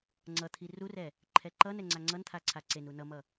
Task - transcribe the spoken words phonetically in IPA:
ŋ͡ǀ ʌ t̪ʰ i r u r ɛ | ǃʰ ɛ ǃ ʌ n ɛ ŋ͡ǀ a ŋ͡ǀ ʌ n t̪ʰ a ǀʰ a ǀ e n u n ʌ m ʌ

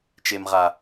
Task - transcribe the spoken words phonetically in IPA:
t͡ʃ e˨ m ʁ a˨

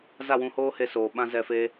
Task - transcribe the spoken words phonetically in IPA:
z a˦˨ w ũ˧ h oː˦ h e˧ s oː˨ ɓ ã˧ z ɛ˧ f eː˦

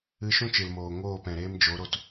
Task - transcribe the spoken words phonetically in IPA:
ɨ˧ ʃ ũ˦ t͡ʃ ɨ˨ l m oː˨ ŋ oː˦˨ p ɛ̃˨ ɾ eː˦ m d͡ʒ o˨˦ ɾ o˧ t

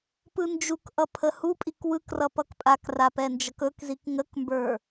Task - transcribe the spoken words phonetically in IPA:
p ɯ n d͡ʒ u k ʔ ʌ pʰ ə h u pʼ i k w ɯ k r ʌ p ʌ k pʼ a k r a p ɛ n d͡ʒ ʌ k ɵ k z i k ŋ ə k m b ə˞

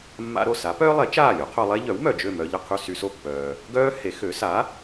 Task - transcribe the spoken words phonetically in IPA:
mː a̰˥ ɾ o˥˩ s a˩˥ p œː˥ lˠ e˩˥ t͡ʃ aː˥˩ lʲ o˩˥ qʰ o˧ lˠ e˥ ʎ œ˩˥ w m œ˩ d͡ʒ ø˥˩ m œ˧ ʎ ə˥˩ qʰ y˥˩ s y˧ s o˥˩ pː œː˩ | ɡ œː˥ h e˩˥ x ø˩˥ s a˩˥

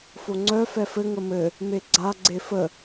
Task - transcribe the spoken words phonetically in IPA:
f o ŋ͡ǀ œ f ɛ f ɘ ŋ ə m ɘ | m e ɡ͡ǀ a ɡ͡ǀ e f ə

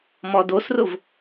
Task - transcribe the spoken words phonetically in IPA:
m ɔ d o s r ʊ v

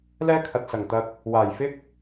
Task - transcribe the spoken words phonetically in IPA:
l ɛː˥ kʰ ɐ˨ t̚ s ɐ˨˩ ŋ t̪ ɐ˧ k̚ | w aː˨˩ j f ɪ˥ k̚

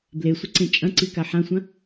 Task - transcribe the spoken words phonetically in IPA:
b l e sʷ ɪ ǀ ẽ t͡ʃʼ ɐ̃ ǀ i k a ħ ã sʷ ɐ̃

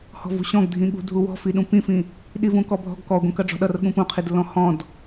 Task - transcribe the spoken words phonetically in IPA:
h ɔ̤ v ṳ ɕ ɔ̃ ɡ dʱ ĩ ɠ ṳ dʱ u w ɔ̤ f i ɗ ũ p ĩ f ĩ | ɗ i v ũ k ɔ bʱ ɔ̤ ɡ k ɔ ɡʷ ĩ k ʌ ɖ͡ʐ ɔ̤ ɗ ʌ r ɠ ũ p ũ qʰ i d lː ɔ̃ h ɔ̃ d

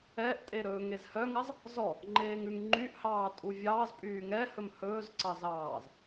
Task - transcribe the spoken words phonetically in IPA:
ɛ ʔ tʼ e ɾ ɵː ŋ e z h œ ŋ ɑ z | z ɔ | ŋ͡ǃ eː ŋ ʉ ŋ ŋ͡ǃ y ʔ h ɑː tʼ u vʲ ɑː z pʼ yː ŋ ɛ h ɵ m h ɵː z ǀ ɑ z ɑː z

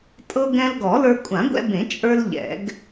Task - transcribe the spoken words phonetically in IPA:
tʼ ɤ˧ ɡ ɛ̃˧ l ɡ ɔ˨˩˦ l ə˞˧ kʷʼ ã˨˩˦ ɡʷ ɛ̰˧ b ẽ˨˩˦ t͡ʃʼ ə˞˧ l ʎ ɛ̰˨˩˦ ɡ

